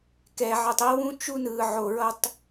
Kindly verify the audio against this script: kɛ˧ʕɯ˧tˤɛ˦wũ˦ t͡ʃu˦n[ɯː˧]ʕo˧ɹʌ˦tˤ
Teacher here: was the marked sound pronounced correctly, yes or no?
yes